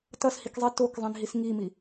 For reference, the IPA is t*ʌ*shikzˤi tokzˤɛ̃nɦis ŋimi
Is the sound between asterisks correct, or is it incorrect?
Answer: correct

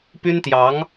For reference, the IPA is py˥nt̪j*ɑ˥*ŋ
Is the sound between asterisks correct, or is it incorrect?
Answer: incorrect: ɑ˧˥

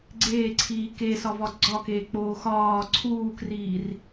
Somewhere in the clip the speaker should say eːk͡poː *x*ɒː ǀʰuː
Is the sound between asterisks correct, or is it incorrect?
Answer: correct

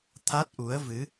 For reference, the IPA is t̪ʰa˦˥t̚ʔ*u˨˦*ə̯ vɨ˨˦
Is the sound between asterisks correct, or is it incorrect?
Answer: correct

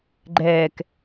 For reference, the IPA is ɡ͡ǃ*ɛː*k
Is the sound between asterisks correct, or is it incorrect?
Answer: correct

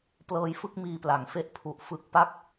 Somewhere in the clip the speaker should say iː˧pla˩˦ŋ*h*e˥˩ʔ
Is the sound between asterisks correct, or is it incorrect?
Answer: incorrect: f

